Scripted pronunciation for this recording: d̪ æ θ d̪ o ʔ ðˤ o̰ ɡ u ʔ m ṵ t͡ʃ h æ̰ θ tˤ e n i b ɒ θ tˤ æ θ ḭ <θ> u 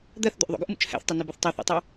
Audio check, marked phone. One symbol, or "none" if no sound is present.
tˤ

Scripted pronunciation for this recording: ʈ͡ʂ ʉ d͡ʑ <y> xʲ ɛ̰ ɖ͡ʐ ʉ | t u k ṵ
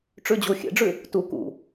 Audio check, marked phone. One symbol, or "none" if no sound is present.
u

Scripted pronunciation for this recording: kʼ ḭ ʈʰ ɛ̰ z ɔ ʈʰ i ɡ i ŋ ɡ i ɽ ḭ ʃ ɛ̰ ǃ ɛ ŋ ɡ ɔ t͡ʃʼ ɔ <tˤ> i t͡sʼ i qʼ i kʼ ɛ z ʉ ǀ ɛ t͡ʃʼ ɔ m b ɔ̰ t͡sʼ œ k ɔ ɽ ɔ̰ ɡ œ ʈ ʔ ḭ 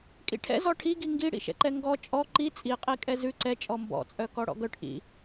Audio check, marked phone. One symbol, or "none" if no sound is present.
ǃ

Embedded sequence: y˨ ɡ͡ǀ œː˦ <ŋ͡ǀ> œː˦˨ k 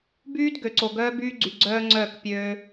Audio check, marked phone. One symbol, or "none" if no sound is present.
ŋ͡ǀ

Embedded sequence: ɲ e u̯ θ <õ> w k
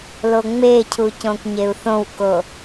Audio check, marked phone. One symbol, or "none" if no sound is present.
õ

